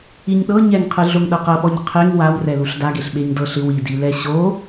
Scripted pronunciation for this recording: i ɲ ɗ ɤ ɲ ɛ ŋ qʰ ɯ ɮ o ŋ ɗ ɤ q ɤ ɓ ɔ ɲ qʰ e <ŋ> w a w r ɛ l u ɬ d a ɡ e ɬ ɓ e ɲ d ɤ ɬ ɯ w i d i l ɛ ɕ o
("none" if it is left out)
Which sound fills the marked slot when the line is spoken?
ŋ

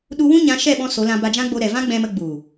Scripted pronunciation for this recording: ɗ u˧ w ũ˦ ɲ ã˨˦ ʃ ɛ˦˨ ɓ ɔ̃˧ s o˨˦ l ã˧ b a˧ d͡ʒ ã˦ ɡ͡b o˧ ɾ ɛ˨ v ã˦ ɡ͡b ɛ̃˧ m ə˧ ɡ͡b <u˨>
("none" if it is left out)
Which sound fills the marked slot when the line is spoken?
u˨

